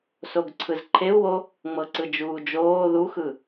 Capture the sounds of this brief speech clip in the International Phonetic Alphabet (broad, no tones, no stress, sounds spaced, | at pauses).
s o ɡ ǀʰ ɯ z ǃʰ e u̯ w o | ŋ͡m ɤ ǀ ɯ d͡ʒ uː d͡ʒ oː ð u x ɯ